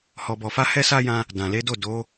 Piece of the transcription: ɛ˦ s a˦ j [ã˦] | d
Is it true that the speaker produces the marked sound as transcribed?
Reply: yes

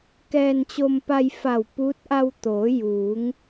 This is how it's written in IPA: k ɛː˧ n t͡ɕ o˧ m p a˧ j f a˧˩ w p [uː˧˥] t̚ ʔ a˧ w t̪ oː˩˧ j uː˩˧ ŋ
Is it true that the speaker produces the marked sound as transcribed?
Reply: yes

